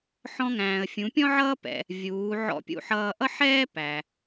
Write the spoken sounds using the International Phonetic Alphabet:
ħɔ̃˧ŋæ̃ː˩ə̯ fʲũ˩˧pʲɔ̃˥ʕʌː˥ pɛ̰˧ | vʲuː˩˧ ʕɔ̰˧˥pʲṵ˧˥ħʌː˧ ʔʌ˥ħɛː˥ pæ˩

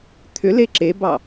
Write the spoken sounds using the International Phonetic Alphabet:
t̪ʰʏle ǁebɑ

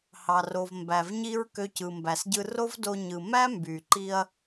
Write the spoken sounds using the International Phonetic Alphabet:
hɑ˩ro˩v mbæ˩vɲi˥ɹ kø˧cɯ˩mbæ˩sɟɯ˧ ro˥vdo˧ ɲɯ˩ mæ˥mby˩ǃi˧ɐ̯

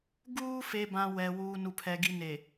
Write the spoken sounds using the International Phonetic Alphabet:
ɡuː˦ fe˨bã˨ wɛ˨ wuː˨nu˨pʰɛ˨ ɡi˨ne˨

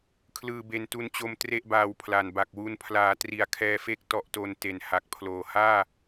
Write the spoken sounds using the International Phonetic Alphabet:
kʰlɯː˧be˧n tu˧nt͡ɕo˧m tre˥˩ʔbaː˧wpʰla˨˩n ba˨˩k̚wu˧n pʰlaː˩˦ tri˨˩a̯kʰɛː˧fe˦˥k̚ tɔ˨˩ʔto˨˩n te˨˩nha˨˩k̚pʰloː˨˩ haː˥˩

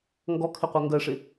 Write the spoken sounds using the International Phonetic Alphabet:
ŋɡɔkʰɪqʷʌ ŋɡɜʂɪ

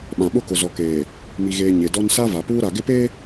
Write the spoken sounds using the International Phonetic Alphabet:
ɓã˨ɓʊ˦˨kʊ˨ zɔ˨keː˨ | mi˦ɣeː˦ ɲe˨dɔ˦n sa˦va˨puː˦ ɾa˨ɡɪ˦pe˦

